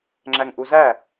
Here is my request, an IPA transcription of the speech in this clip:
ŋ͡ǁ æ ŋ ʔ u z æ

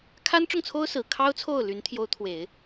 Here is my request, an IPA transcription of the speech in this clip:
kʰ a˥ n ʈ͡ʂ ʊ˥˩ ŋ t͡sʰ o˥ ʊ̯ s ɹ̩˨˩ kʰ ɑ˥ ʊ̯ t͡sʰ o˥˩ ʊ̯ l y˧˥ n t̪ʰ j o˧˥ ʊ̯ t̪ʰ w e˨˩˦ ɪ̯

